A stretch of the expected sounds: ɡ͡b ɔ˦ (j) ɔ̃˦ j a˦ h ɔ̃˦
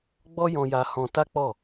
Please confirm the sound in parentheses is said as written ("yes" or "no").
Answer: yes